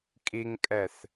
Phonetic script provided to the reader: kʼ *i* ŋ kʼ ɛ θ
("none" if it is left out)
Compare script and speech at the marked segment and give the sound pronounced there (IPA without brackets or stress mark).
i